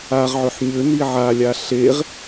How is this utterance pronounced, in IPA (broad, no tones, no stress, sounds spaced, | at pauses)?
a ʁ ʕ ʏ ħ ɲ ʏ n i ʕ a lʲ a ɬ e ʁ